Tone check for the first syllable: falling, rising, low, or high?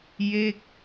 falling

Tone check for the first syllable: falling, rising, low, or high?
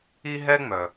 high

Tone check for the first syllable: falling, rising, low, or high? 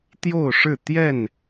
falling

